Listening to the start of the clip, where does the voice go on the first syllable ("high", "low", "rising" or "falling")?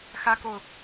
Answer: high